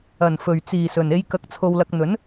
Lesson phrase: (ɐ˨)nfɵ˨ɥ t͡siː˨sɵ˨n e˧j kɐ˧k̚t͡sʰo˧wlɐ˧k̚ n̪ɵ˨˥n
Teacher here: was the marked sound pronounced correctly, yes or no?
yes